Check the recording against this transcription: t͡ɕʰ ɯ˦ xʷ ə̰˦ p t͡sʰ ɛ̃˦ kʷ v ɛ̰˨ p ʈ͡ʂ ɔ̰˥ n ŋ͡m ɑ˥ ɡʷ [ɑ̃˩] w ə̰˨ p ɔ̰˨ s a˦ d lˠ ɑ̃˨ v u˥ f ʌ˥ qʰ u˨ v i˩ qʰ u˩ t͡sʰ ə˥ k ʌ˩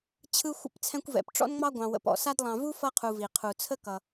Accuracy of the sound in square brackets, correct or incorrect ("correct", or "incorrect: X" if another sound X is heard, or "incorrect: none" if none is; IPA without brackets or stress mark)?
incorrect: ɑ̃˨